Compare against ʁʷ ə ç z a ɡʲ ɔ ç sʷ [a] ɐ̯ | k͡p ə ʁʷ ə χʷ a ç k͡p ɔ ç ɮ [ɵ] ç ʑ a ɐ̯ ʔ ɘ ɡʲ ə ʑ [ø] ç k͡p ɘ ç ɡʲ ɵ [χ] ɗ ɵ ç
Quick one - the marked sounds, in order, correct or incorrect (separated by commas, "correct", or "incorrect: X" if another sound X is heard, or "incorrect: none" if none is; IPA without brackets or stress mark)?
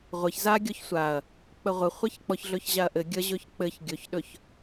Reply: correct, correct, incorrect: ɵ, incorrect: ç